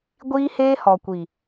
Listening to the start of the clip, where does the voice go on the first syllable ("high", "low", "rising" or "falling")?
high